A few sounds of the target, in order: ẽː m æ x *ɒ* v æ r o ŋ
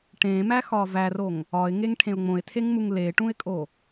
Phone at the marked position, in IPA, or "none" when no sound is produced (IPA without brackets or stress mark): ɒː